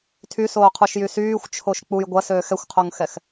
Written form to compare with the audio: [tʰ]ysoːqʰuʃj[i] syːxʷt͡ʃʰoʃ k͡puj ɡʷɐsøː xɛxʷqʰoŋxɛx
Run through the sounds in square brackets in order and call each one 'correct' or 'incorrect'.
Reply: correct, incorrect: y

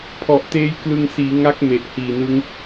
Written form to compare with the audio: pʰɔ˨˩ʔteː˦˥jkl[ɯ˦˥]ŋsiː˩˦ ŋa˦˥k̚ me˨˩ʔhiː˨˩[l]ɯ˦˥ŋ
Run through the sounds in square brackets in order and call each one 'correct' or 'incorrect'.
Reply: incorrect: ɯ˧, incorrect: n

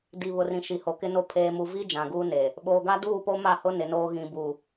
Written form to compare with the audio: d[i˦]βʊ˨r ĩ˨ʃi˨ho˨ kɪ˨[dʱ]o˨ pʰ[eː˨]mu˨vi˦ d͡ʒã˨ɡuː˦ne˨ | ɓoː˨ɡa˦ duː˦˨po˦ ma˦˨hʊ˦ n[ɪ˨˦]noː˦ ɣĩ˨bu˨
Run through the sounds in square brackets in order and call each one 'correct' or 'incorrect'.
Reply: incorrect: i˨, incorrect: n, correct, correct

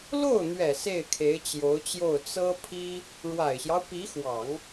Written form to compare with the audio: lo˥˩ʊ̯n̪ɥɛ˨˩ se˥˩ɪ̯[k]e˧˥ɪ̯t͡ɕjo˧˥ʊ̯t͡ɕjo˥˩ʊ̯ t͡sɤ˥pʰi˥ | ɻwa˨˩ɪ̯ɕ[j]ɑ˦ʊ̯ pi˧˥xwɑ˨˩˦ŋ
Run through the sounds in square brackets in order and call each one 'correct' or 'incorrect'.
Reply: incorrect: kʰ, correct

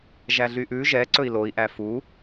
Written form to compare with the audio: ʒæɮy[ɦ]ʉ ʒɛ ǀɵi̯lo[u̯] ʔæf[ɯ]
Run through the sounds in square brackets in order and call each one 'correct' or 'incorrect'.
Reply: incorrect: ʔ, incorrect: i̯, incorrect: u

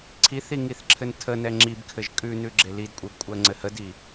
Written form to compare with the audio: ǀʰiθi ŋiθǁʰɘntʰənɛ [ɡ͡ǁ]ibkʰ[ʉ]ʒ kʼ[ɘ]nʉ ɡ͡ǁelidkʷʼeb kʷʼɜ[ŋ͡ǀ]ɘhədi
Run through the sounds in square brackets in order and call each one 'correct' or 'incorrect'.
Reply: incorrect: ŋ͡ǁ, incorrect: ɘ, incorrect: ʉ, correct

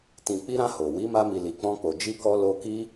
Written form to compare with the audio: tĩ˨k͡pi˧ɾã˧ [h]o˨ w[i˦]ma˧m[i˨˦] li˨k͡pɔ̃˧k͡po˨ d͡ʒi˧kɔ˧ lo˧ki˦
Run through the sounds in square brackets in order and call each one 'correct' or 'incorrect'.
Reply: correct, incorrect: i˨˦, incorrect: i˨

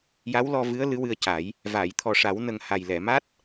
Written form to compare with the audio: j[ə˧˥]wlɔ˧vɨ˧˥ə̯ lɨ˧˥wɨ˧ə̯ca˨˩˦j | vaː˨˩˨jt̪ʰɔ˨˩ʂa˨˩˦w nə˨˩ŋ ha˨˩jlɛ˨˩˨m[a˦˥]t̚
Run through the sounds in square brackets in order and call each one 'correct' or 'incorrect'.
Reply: incorrect: a˧˥, correct

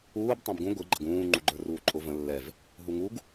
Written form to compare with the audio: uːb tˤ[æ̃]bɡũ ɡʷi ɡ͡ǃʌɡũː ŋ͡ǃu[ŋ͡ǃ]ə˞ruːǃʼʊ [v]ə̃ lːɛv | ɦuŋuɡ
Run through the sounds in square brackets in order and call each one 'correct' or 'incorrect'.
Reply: correct, incorrect: ɡ͡ǃ, correct

